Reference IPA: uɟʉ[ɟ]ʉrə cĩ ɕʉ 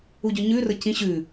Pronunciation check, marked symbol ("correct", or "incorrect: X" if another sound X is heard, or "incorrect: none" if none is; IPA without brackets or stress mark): incorrect: ɲ